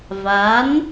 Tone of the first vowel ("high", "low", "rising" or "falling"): rising